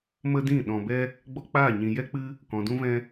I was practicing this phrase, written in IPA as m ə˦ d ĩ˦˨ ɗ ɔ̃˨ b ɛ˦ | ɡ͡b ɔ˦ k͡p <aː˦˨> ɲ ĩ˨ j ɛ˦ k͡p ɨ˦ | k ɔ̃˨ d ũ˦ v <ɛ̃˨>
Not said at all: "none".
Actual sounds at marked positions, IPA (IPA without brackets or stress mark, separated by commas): aː˦˨, ɛ̃˦